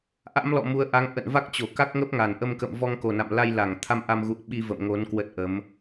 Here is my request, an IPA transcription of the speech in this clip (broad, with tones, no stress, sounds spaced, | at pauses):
ʔ a̰˧˥ m l ɔ̰˧˨ m u˨˦ ə̯ ʔ a˨˦ ŋ ʔ ə̰˧˨ n v a˦˥ k̚ t͡ɕ o˧˩ k a˦˥ k̚ ŋ ə˦˥ p̚ ŋ a˨˩ n ʔ ə˧ m k ə̰˧˨ m v ɔ˧ ŋ k o˨˩ n a̰˧˨ m l a˧ j l a˧˩ ŋ t̪ʰ a˧ m ʔ a˧ m ɣ ṵ˧˨ ə̯ ɓ i˧ v ə̰˧˨ m ŋ o˨˦ n k w ə˦˥ t̚ ʔ ə˨˦ m